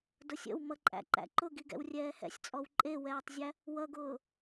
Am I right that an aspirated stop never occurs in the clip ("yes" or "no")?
yes